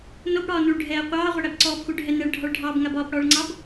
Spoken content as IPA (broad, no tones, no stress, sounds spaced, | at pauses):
n o b ɽ ɒː n u ɭ ɖʱ ɛː qʷ ɑː ʁʷ ɛ ɽ æ b ǀ ɔː p x u ɖʱ ɛ n ɛ ɭ ɖʱ ɒ ɭ ɖʱ ɑː b ŋ a b ɒː p ɽ ɔː ɭ ŋ͡ǀ ɑ b